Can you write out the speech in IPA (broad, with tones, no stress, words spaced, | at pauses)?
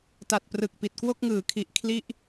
ta˨˩t̚prɯ˨˩k̚pi˨˩t̚kwo˥˩k̚ ŋɯː˩˦kʰi˨˩ʔ kʰli˥˩ʔ